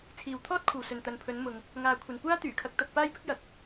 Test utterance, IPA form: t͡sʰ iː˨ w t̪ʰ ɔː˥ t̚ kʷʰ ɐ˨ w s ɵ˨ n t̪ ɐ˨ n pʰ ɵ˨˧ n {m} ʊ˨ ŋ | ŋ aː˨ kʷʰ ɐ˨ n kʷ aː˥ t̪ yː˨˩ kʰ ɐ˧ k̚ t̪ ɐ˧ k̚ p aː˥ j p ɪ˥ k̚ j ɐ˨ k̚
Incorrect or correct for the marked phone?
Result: correct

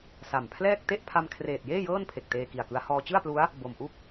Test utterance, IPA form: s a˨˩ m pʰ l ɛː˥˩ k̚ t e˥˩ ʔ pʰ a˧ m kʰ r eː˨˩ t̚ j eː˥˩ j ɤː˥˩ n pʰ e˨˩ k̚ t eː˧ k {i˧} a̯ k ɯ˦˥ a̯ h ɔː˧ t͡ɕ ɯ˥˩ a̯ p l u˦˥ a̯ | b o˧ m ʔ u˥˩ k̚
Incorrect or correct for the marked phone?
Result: incorrect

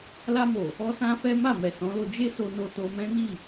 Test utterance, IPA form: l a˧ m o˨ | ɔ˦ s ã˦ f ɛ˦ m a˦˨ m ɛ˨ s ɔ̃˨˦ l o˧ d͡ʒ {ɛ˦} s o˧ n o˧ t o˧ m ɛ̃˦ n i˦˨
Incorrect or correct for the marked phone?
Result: incorrect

